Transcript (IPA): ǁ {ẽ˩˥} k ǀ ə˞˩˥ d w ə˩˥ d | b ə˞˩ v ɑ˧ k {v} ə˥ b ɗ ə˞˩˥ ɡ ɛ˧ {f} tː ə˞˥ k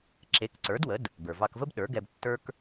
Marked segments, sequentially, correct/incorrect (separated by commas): incorrect, correct, incorrect